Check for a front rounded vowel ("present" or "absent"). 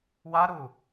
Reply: absent